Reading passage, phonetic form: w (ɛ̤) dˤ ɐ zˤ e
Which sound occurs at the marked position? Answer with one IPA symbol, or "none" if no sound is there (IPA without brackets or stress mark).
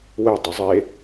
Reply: ɛ